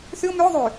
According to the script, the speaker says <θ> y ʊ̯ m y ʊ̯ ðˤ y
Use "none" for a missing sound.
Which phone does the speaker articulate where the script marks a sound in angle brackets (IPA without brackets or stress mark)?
θ